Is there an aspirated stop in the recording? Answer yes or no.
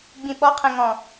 yes